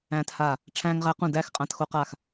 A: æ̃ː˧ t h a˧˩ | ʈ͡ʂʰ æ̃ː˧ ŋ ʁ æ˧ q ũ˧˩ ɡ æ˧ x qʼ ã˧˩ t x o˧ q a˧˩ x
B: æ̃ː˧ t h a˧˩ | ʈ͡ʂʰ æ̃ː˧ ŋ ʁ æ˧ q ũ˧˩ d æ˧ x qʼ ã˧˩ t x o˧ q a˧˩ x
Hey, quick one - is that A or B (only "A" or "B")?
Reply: B